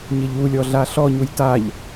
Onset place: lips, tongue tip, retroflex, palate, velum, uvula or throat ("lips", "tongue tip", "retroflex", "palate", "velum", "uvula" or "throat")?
palate